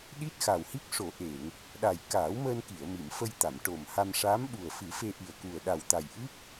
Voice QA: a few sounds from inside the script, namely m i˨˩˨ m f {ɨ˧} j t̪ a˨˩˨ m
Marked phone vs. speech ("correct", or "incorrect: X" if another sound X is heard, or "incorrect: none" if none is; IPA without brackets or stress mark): incorrect: ə˧